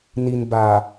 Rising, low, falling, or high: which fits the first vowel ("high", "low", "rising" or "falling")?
low